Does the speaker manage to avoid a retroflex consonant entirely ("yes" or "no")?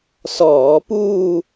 yes